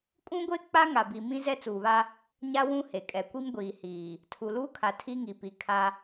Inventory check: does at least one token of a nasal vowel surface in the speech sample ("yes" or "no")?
yes